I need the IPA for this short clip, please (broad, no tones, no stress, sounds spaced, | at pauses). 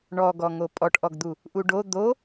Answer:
ɳ ɔ ɡ ɔ ŋ o pʼ ɔ ʈ ʔ ɔ ɡ d̪ u | ʔ u ɖ o d̪ o